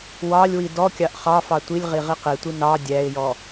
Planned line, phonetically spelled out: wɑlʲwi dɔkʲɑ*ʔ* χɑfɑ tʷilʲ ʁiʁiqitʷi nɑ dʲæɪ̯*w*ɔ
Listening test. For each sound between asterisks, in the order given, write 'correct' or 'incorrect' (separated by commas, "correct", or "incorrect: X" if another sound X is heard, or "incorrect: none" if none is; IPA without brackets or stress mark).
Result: correct, incorrect: j